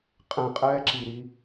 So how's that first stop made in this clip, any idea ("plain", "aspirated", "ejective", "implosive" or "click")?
ejective